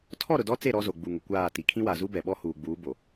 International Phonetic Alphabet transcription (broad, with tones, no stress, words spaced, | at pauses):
tʰɔ˦˨ɾʊ˨dɔ˦t͡se˦˨ ɾɔ˦zo˨ɡ͡bu˨ŋʊ˨ kʷaː˦˨ti˨ kʰĩ˦wa˨zu˦ bɛ˨ɓɔ˦ huː˨ɡ͡buː˨˦bo˨